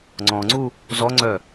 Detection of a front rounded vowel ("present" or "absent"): present